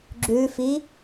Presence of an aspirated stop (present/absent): absent